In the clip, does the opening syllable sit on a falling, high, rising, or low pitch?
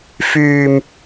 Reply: low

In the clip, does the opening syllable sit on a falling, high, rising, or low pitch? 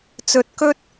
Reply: rising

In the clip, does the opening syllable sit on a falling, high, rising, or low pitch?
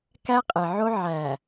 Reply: high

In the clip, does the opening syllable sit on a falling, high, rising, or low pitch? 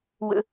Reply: low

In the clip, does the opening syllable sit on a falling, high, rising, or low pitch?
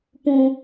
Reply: high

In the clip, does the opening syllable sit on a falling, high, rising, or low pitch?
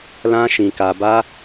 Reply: high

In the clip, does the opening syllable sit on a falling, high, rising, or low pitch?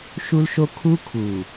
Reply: high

